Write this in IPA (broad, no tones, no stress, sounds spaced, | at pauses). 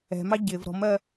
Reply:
ɛ̤ m ɑ ɟ ɪ v ɾ ɔ̤ m ɜ